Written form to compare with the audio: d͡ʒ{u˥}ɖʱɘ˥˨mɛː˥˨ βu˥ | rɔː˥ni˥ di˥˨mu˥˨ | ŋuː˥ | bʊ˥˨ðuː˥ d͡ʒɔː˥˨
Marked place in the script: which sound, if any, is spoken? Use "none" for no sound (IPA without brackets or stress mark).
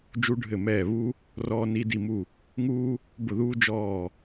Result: u˥